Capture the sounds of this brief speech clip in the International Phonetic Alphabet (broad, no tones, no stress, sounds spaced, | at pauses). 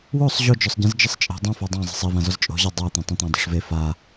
w o sˤ ʑ o d͡ʒ ɔ sˤ ɟ ẽ z d͡ʒ ɘ sˤ t͡ʃʼ e̤ dˤ ã f a dˤ ã zˤ e̤ sˤ i v ã z ɔ z t͡ʃʼ o̤ ʑ a dˤ a t̪ ẽ tˤ õ t̪ ã dˤ ṳ ʂ v e f a